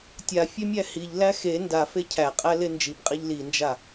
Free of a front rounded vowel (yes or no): yes